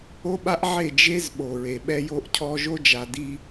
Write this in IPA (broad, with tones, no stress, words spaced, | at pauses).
o˦ɓa˦ʔʕe˦˨ d͡ʒe˦z ɓo˨ ɹe˨ ɓɛ˦jo˦ʔcʰɔ˦ ʒo˦d͡ʒa˨di˦